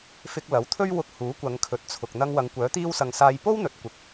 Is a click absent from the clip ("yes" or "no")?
yes